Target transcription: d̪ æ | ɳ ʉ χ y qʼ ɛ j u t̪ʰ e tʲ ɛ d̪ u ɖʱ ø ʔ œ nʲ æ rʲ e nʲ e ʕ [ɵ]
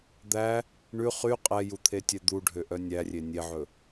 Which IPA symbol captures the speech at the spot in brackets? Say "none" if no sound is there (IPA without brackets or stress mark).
ɵ